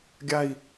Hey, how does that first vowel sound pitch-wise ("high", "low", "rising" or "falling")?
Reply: falling